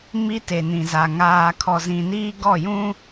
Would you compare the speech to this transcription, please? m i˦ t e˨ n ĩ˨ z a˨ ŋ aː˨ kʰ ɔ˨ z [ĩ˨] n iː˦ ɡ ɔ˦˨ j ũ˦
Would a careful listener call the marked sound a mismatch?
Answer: no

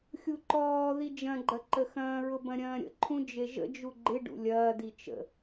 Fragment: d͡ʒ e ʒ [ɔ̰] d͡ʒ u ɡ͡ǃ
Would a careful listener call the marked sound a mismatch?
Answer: yes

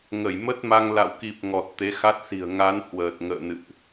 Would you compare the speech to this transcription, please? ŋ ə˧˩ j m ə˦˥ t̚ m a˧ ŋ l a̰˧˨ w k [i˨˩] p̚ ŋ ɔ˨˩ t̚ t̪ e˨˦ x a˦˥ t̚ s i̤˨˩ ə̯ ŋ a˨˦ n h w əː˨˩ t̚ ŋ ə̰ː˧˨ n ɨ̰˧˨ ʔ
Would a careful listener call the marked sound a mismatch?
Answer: no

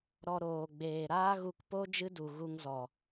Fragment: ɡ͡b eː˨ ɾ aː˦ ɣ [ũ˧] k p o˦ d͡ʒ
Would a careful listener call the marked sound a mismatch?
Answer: yes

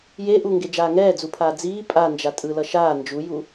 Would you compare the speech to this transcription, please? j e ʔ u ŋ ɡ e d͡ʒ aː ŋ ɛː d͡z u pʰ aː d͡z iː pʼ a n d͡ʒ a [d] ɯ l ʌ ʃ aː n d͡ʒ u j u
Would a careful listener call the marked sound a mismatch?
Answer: yes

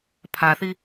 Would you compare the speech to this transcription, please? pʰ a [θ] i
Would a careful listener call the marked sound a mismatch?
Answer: no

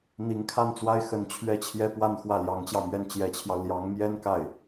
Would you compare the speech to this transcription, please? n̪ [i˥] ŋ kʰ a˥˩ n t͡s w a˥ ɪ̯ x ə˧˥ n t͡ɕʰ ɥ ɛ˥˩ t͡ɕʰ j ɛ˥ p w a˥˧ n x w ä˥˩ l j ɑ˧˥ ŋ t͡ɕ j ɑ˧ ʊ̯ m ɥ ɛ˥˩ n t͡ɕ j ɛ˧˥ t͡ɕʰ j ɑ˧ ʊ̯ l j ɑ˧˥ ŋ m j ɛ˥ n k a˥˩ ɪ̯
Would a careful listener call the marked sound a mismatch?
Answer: yes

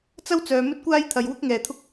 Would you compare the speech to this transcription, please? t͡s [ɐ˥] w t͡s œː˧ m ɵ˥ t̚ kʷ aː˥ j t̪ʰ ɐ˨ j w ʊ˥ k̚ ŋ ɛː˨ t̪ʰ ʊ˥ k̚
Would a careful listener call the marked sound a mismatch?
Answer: no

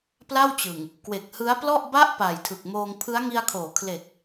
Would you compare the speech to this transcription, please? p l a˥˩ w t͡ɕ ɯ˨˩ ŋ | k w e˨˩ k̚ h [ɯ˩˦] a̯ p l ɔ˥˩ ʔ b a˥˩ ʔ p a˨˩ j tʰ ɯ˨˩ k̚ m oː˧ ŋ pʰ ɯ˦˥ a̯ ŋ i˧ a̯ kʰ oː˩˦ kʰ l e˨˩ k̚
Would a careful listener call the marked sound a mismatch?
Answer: yes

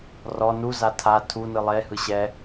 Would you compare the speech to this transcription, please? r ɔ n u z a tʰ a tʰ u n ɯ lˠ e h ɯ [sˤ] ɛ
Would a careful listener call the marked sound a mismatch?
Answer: yes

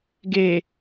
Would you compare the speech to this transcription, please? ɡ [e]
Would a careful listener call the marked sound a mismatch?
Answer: no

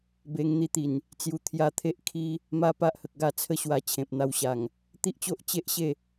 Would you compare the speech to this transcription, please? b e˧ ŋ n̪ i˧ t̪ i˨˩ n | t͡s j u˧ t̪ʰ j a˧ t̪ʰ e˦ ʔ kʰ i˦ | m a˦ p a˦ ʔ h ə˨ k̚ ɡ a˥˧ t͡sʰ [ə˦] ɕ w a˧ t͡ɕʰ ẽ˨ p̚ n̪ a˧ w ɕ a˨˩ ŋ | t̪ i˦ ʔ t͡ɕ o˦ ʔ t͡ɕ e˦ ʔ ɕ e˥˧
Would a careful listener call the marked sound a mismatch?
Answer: no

